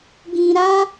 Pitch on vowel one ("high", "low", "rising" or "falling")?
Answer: low